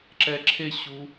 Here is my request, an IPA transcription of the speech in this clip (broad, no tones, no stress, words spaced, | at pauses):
ǁɛǁʰeɕu